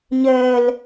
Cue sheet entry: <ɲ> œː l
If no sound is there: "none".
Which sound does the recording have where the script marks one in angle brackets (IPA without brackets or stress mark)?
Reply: ɲ